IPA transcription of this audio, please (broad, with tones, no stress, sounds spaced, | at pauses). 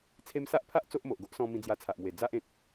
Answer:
t͡sʰ e˧ m s a˦ ʔ pʰ a˦ ʔ t͡s o˦ ʔ m o˨ ʔ ɡ o˦ ʔ s ɔ̃˧ m ĩ˧ d͡z j a˧ t͡sʰ a˨ ʔ m w e˨˩ d͡z a˦ ʔ ẽ˨ t̚